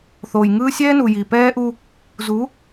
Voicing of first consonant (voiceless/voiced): voiceless